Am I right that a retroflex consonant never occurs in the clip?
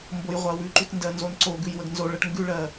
no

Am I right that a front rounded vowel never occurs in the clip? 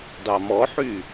no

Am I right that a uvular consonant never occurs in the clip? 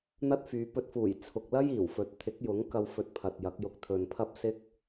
yes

